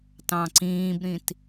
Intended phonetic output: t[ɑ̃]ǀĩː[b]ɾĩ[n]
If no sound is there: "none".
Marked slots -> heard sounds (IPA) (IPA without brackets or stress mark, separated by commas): ɑ̃, b, t